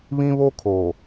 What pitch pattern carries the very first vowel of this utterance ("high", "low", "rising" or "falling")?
high